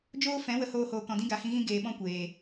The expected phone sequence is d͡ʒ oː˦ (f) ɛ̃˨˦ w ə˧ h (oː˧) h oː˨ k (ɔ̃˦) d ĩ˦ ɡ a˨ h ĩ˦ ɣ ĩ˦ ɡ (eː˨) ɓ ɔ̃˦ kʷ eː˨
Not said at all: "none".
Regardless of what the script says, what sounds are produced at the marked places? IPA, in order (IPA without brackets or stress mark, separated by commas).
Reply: f, oː˧, ɔ̃˨, eː˧